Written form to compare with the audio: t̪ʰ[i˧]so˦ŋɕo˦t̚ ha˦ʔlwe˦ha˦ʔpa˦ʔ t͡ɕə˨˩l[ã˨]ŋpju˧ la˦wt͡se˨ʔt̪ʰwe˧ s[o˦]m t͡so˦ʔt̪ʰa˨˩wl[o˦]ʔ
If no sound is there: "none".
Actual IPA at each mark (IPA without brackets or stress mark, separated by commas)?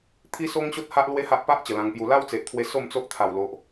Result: i˦, ã˧, o˥˧, o˨